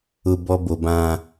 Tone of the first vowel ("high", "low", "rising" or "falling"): high